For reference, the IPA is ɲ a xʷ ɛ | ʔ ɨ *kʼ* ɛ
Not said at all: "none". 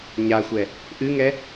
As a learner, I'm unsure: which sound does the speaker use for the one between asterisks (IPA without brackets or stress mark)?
ŋ